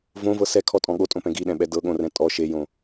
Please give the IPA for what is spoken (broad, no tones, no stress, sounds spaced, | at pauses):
v õ v ɤ s ɛ kʰ ɔ tʼ ɔ̃ ɠ o tʼ õ p ɛ̃ ɡ i ɗ ɛ̃ ɓ ɛ d ɤ ɠ õ r ɛ̃ tʼ ɔ ʃ e j õ